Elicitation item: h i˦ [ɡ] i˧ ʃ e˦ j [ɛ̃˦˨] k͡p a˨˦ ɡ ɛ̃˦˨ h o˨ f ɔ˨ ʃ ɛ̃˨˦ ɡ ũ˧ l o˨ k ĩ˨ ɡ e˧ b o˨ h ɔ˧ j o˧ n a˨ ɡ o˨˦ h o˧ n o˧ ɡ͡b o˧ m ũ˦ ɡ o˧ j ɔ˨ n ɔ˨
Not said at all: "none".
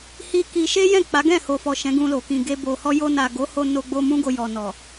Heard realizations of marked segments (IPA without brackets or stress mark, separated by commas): k, ɛ̃˦˨